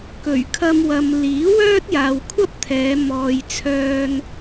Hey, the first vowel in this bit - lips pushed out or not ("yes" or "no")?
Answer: yes